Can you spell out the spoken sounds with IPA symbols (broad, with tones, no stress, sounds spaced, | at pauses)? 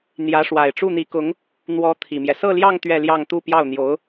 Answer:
n̪ j ä˧˥ ʂ w a˨˩ ɪ̯ ʈ͡ʂ u˥˩ n̪ i˧˥ k ʊ˧˥ ŋ | n̪ w ɔ˧˥ t̪ʰ i˨˩ m j ɛ˦ s ɤ˥˧ l j ɑ˥˧ ŋ t̪ ɥ ɛ˥˧ l j ɑ˥˧ ŋ t̪ u˥˧ p j ɑ˥˩ ʊ̯ n̪ j o˧˥ ʊ̯